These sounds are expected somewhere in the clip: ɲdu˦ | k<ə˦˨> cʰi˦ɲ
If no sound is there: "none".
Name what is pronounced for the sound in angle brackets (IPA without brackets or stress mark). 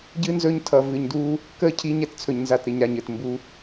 ə˦˨